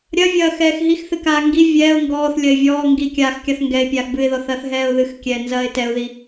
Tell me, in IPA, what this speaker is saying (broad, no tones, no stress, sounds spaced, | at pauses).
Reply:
ɾʲ ɐ vʲ ɐː x ɛː x ɦ i x θ ɨ k aː ŋ ɡ i vʲ ɛː ʊ̯ ŋ ɡ ɔː θ lʲ ɐ ɪ̯ vʲ ɔː ŋ ɡ i kʲ aː x kʲ a θ ŋ ɡ ɛ ɪ̯ pʲ aː x b ɨ ɪ̯ ð ɔ θ ɐː θ ɦ ɛː ʊ̯ ð ɨ x kʲ ɛː n z ɐː ɪ̯ t ɛ ʊ̯ ð i